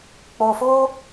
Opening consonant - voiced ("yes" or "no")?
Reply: no